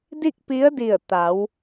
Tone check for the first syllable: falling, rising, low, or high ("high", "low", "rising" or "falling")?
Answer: falling